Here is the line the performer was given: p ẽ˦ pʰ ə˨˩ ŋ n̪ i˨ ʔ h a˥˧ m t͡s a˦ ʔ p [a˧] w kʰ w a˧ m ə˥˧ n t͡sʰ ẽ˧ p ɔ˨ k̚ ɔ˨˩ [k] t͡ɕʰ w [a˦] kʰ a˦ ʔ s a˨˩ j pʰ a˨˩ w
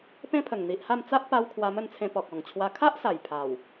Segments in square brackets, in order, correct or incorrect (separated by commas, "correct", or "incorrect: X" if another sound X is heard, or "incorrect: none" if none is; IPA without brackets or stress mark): correct, incorrect: ŋ, incorrect: a˧